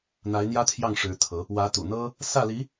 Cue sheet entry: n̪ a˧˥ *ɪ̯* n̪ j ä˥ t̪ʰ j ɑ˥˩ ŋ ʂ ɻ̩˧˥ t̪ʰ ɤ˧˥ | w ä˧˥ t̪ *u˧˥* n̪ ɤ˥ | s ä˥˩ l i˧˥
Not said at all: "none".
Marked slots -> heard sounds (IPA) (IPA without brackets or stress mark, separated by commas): ɪ̯, ṵ˨˩